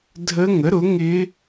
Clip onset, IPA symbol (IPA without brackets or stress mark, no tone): dʱ